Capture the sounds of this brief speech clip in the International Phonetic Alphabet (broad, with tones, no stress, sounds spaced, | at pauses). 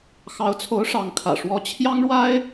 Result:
x ɑ˧˥ ʊ̯ t͡sʰ o˧˥ ʊ̯ ʂ ɑ˧˥ ŋ kʰ ä̰˨˩ ʂ w ɔ˥ t͡ɕʰ j ɑ˥ ŋ ɻ w a˥ ɪ̯